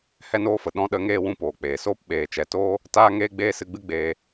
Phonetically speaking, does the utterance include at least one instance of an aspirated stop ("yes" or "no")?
no